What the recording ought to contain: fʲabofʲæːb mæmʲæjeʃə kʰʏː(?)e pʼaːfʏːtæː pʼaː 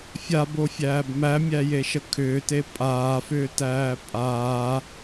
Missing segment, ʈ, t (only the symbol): t